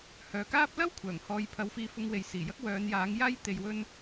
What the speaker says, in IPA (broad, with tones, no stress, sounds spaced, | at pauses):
h œː˨ k aː˥ p̚ l ɐ˥ w kʷʰ œː˨˩ ŋ h ɔː˨˧ j pʰ ɐ˧ w f iː˧ f ʊ˧ ŋ w e˨ j s iː˨˩ j ɐ˥ k̚ w œː˨˧ n j aː˨˥ ŋ j aː˥ j t̪ e˧ j w ɵ˥ n